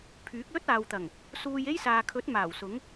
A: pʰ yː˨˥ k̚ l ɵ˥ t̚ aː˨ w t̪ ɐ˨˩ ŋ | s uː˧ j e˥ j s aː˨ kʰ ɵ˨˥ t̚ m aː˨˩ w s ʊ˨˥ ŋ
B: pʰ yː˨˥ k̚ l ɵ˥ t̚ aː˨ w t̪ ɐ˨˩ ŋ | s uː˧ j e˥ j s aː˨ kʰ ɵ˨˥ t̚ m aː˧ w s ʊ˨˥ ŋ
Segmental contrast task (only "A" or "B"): A